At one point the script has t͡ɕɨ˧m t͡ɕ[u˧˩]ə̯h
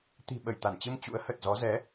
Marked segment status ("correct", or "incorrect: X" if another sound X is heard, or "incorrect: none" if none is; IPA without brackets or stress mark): incorrect: ṵ˧˥